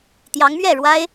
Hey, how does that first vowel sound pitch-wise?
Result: rising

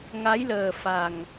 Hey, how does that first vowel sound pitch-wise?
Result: rising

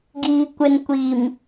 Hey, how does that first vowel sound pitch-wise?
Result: low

